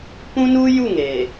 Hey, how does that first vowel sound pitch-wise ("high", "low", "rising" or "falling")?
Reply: high